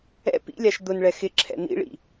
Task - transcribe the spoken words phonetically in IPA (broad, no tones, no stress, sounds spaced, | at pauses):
ɛ̰ p ḭ lʲ a ʃ d̪ ʊ n ɭ ɛ x ɪ ǁʰ ɛ̰ n̪ ḭ ɭ ḭ